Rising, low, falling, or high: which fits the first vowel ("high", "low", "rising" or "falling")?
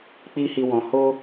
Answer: high